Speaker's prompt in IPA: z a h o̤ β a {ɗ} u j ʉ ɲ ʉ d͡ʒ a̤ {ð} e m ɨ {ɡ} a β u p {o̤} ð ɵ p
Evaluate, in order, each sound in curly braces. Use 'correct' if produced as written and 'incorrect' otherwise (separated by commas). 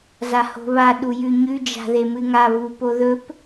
correct, correct, incorrect, incorrect